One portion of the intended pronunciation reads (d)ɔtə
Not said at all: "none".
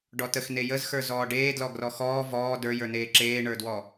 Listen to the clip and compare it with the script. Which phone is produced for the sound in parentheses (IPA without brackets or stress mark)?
ɖ